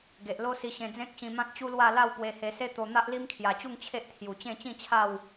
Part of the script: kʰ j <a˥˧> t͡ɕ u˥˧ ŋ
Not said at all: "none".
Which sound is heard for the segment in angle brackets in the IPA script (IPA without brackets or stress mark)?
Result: a˨˩